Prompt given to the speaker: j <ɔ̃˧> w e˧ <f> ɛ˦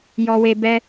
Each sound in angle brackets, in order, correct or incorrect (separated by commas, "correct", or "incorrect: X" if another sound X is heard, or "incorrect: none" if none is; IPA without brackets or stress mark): incorrect: ɔ˧, incorrect: b